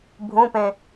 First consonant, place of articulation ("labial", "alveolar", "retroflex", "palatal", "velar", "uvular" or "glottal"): labial